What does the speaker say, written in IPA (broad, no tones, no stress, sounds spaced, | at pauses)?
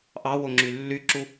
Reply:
ʔ ɑ w o ŋ͡ǁ y lː y ǁ u